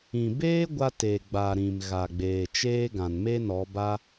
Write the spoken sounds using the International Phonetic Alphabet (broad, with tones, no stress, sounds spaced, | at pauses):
ĩ˨ b eː˦ ɡʷ a˧ t eː˨ ɡ͡b a˨ ɾ ĩ˨ m ɣ a˨ ɡ͡b eː˨ t͡ʃ eː˦ ɡ ã˨ n m e˦ n ɔ˨˦ b a˦